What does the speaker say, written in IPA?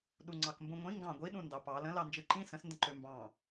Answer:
ɗ u ŋ͡ǀ ɑ k m b ũ ŋʷ ĩ ŋ ɡ ɑ̃ ɡʷ i ɗ ũ n d ɑ p ɑ l ə̃ l ɑ n d͡ʒ ɯ ǃ ĩ s ə̃ s n d ə̃ ǃ ø m b ɑ̃

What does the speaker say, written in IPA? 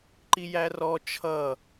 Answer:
ǃ i j æ r ɔ t͡ʃʰ ʌ

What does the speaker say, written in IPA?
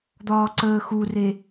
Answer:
d̪ ɒː ǀ əː x u r e

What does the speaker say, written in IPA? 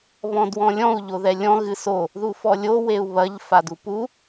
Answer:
β ɔ̃ d w ɔ̃ lʲ ɔ̃ u̯ ʎ o ð ɛ lʲ ɔ̃ ɣ ɨ s o | ð u f ɔ lʲ o w e u̯ β ɐ ʎ f a d u p u

